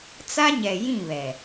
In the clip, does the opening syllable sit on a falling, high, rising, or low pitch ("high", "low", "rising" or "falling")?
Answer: high